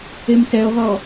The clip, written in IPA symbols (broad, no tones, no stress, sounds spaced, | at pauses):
e m s ɛ o̯ ʁ ɔ